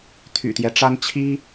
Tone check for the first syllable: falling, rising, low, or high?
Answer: low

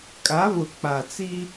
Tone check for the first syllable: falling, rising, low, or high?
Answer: rising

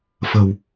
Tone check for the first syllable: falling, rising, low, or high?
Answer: low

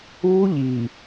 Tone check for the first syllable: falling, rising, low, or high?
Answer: high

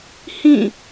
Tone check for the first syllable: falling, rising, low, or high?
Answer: falling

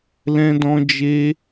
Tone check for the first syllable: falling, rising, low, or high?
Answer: high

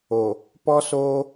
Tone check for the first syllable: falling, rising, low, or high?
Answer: low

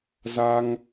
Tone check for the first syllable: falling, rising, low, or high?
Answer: high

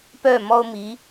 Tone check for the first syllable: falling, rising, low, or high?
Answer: falling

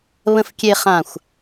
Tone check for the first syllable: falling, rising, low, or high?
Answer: low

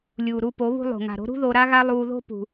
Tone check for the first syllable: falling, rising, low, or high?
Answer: low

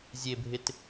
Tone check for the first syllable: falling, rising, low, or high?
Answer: low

